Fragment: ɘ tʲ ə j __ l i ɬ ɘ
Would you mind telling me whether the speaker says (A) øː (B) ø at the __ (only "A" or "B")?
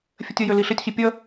B